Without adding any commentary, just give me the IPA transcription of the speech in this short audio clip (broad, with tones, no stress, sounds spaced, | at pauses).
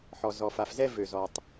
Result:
ħ ɔ˩ z ɔ˩ f a˩ f z ɛ˧ v ø˩ z ɔ˩ tˤ